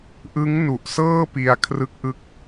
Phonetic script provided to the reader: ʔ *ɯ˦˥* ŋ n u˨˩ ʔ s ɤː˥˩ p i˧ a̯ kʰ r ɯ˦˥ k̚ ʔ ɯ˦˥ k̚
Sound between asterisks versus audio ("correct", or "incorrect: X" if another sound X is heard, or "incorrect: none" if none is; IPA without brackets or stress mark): correct